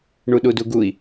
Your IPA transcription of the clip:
ɳ u ɗ u d u ɡ u i̯

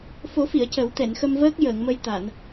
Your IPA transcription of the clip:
f o˨˩˦ f i˨˩˨ ə̯ c ə˨˩˦ w t̪ ɛ˨˩˨ n x ə˧ m v əː˦˥ k̚ j əː˨˩˨ ŋ m ə˧ j t̪ a˨˩˨ n

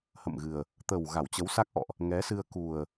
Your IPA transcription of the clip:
h ə̰˧˨ m ɣ ɨ˨˩ ə̯ | t̪ ə˨˩ w ɣ a˧˩ w t͡ɕ ə˨˦ w s a˦˥ k̚ ʔ ɔ̰˧˨ ʔ | ŋ ɛ˨˦ s ɨ˧ ə̯ k u˨˩ ə̯

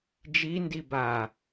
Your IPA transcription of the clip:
d͡ʒ i n d i b a

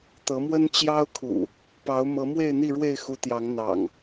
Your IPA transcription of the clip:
t̪ ɤ˨˦ m w ə˦ n t͡ɕ j ɑ˦ ʊ̯ kʰ ṵ˨˩ | p ɑ˨˦ ʊ̯ m ɤ˨˦ m w e˥˨ ɪ̯ n̪ i˥˨ ɻ w e˥˨ ɪ̯ x u˨˦ t̪ j ɑ˨˦ ŋ n̪ ɑ̰˨˩ ŋ

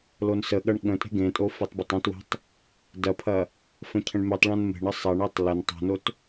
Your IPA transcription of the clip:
l o n s ə ɠ ɐ ɳ ɠ ə̃ tʼ e̤ ɡ ẽ tʼ o f e tˤ b ɐ tˤ õ t w e̤ tˤ | d ɐ pʰ ɐ | f ə̃ cʰ ə̃ ɳ m e tˤ ɭ ɐ̃ n m e̤ ɳ ə sˤ ɐ ɳ e tˤ l ə n tˤ o̤ n o t

